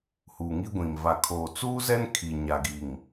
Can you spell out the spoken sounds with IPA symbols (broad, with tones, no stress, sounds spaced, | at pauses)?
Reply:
h uː˨ ŋ i˦ ɡʷ ĩ˨ m v a˨ kʰ oː˨ t͡s uː˦ z ɛ˦ n kʰ i˨ ɲ a˨ ɡ i˨ ŋ